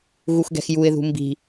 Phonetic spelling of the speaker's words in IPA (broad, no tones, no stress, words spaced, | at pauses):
ɣuxɡɛ̤xjuɪ̯ðṳ mbi̤